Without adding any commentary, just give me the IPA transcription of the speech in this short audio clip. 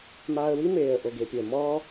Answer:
maː˧ə̯wi˦ meː˨ə̯ ʔo˨ɡe˨pʲʊ˨ə̯ mɔː˦

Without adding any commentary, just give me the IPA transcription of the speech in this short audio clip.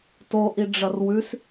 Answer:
toʔi ɖ͡ʐɐrwʉs

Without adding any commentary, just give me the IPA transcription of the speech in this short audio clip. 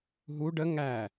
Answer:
ɦu ɖə ŋæ

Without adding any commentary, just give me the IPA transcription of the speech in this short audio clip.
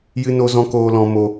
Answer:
jɨ˧no˧zɔ̃˧ koː˧lɔ̃˧ mo˧

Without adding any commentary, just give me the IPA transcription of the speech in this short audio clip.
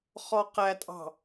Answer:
χɔqætʼɑ̤

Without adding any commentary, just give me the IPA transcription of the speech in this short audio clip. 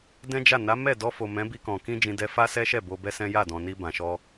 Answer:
dɛ̃˦d͡ʒa˦˨ na˨˦ mɛ˦˨ dɔ˧fo˨ mɛ̃˨˦bi˧kɔ̃˨ kĩ˧d͡ʒĩ˨dɛ˧ fa˦sɛ˦ʃɛ˦˨ bo˧bɛ˦sɛ̃˦ ja˦˨dɔ̃˨ni˧ bã˨ ʃɔ˧

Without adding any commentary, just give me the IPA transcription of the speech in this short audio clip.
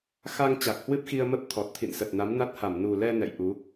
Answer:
xa˧ŋ t͡ɕa˨˩k̚hwɨ˦˥p̚xi˧ə̯mə˦˥p̚ t̪ʰɔ˨˩t̚t̪ʰḭ˧˨nsə˨˩t̚ na˨˦mna˦˥t̚ha˧˩m nu˨˩lɛ˧ nɛ̰˧˨j ʔu˨˦

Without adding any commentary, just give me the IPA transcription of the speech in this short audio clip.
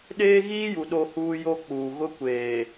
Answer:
ɗeː˦ɣiː˦ju˨ ɗo˦huː˦jo˦k͡puː˨ ɣʊ˦kʷeː˨

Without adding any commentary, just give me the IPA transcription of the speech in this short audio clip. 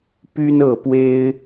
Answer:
py˦nɤ˥˨pwe˦ɪ̯

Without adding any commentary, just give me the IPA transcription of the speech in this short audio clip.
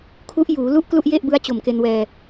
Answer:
kʰu˦˥ʔjuː˩˦ lu˥˩ʔklu˥˩ʔje˥˩ʔ bɯ˦˥a̯t͡ɕo˨˩mke˧nwɛː˧

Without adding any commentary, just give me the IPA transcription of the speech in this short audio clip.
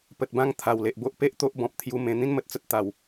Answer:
pə˨t̚bã˧ŋ t̪ʰa˨˩wle˨ʔbo˦ʔ pe˦ʔ t̪o˦ʔbɔ̃˨p̚t̪ʰju˧ mẽ˧ n̪ĩ˦nmə˨t̚t͡sə˦t̚ t̪a˨˩w

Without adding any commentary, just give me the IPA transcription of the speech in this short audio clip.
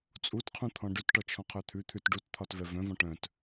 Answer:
t͡sʼutqʰũt̪ʰɔ̃ ɖʉtʈɔt͡ʃʰɔ̃qʰœ t̪ʰʉt̪ʰʉt ɖutt̪ʰɒtvɛ vœ̃vɔ̃ ʈœ̃t

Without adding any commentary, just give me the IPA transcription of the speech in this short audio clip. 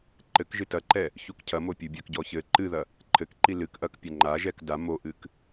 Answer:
ǃɘk ʒɨtɐǃɛ | çukcʰɐmo pʲubʲɐkɟɔ çɘ ǃɨðɐ | ǃʰɘkǃi lɨk ʔɐkpʲɐ ŋ͡ǃaʒɛk da moʔɨk

